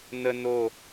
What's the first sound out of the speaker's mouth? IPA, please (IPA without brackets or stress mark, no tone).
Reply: n̪